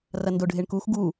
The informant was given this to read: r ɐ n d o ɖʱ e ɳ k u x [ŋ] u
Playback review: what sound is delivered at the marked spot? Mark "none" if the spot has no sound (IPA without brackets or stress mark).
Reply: ɡ